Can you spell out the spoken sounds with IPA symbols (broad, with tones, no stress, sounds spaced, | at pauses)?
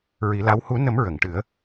ɹ i˨˩˦ l a˧˥ w h u˨˩˦ n ə˨˩˦ m ɹ ə˨˩˨ ŋ ʈ ɨ˨˩˦ ə̯